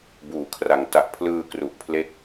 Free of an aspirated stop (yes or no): no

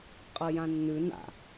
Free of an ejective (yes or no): no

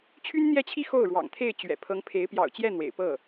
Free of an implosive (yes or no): yes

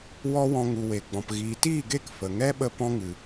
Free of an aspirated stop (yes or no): yes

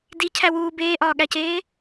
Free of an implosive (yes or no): no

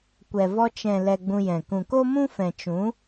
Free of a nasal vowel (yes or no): no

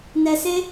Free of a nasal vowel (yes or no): yes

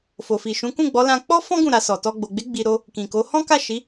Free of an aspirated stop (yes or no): yes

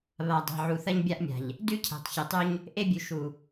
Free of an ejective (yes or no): yes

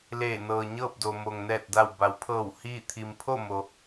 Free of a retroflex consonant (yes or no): yes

